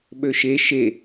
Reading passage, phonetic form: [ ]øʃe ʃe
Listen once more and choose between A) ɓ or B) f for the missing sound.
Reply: A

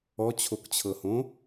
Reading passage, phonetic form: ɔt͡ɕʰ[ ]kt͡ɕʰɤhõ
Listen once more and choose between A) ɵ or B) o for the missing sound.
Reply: B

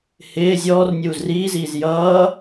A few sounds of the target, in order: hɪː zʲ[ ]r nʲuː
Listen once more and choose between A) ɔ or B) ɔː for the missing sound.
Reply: B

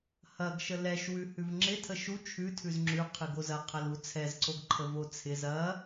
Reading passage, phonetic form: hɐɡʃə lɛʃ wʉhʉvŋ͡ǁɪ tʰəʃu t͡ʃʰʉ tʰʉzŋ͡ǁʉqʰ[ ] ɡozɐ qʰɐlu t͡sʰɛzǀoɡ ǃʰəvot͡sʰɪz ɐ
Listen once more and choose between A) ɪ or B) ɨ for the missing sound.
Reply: B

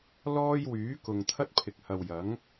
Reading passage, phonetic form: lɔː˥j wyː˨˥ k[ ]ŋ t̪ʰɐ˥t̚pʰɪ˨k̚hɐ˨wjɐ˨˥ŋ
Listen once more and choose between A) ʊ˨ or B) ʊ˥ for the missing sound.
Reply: A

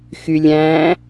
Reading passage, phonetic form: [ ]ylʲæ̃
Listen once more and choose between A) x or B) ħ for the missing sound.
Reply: A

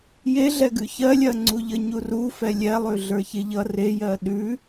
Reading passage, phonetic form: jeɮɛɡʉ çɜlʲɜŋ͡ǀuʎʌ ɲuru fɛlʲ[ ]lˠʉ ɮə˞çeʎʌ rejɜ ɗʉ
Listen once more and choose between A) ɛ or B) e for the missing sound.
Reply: A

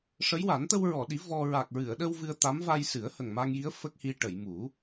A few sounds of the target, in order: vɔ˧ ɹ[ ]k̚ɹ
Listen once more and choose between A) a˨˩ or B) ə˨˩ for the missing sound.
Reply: A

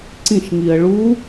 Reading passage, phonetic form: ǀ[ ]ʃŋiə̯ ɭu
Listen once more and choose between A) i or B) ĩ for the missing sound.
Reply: B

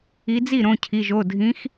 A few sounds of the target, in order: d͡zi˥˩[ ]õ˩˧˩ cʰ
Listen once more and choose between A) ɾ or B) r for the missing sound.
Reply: A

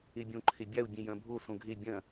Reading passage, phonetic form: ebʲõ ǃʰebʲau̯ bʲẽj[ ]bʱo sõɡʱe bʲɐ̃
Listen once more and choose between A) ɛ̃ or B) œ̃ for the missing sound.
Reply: B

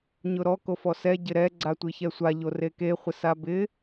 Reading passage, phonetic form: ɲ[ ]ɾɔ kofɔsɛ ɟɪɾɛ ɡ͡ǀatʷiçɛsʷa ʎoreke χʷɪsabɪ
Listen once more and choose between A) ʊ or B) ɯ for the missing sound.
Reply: A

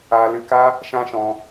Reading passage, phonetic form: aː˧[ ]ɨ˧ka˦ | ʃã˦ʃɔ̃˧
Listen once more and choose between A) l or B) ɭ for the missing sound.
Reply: A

